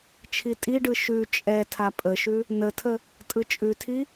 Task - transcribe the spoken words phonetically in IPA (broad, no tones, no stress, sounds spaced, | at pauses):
t͡ʃʰ i tʼ i ɖ ɯ ʃ ʉ t͡ʃʼ ɛ tʰ a pʼ ə ʃ ʉ | n ə tʰ ə | tʼ ɯ t͡ʃʼ ʉ tʰ i